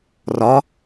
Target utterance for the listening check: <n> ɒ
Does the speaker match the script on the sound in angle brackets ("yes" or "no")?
no